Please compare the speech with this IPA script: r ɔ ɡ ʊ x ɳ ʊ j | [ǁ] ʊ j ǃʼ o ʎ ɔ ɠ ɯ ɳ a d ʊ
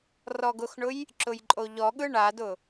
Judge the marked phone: correct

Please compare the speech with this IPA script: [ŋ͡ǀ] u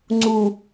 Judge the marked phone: correct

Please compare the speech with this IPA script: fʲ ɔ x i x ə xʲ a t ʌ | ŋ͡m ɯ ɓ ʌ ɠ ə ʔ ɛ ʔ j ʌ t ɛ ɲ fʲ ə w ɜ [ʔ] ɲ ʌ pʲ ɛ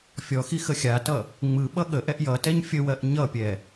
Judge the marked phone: correct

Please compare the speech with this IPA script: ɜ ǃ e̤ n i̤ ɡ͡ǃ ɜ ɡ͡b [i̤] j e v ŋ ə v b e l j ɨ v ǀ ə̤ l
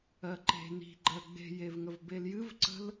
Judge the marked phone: incorrect: e̤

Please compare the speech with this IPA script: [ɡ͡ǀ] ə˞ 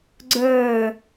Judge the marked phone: correct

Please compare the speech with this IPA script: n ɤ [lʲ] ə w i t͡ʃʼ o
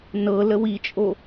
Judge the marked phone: incorrect: l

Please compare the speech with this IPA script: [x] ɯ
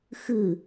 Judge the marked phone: correct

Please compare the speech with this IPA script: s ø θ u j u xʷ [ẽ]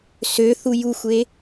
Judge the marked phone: incorrect: e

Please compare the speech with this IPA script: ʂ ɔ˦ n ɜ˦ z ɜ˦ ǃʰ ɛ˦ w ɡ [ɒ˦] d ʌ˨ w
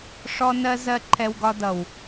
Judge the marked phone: correct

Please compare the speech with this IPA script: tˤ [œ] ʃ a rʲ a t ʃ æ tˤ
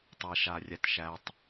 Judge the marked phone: incorrect: æ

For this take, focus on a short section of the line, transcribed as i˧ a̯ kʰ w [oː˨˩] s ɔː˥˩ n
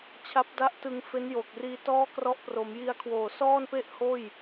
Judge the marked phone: correct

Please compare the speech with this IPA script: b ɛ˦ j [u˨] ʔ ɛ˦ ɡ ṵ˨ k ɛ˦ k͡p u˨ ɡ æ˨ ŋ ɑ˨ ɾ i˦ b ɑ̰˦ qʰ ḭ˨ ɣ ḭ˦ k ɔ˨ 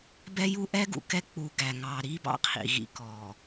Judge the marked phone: incorrect: u˦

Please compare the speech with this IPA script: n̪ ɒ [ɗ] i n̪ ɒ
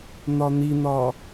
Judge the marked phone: incorrect: n̪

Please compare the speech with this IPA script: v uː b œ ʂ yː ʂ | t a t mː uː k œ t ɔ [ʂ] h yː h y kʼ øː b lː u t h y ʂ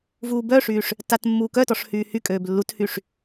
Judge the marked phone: correct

